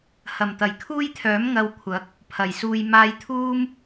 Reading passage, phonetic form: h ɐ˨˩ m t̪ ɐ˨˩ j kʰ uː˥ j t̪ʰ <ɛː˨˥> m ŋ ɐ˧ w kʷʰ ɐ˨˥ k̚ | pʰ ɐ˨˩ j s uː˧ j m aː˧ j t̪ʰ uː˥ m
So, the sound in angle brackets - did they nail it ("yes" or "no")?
no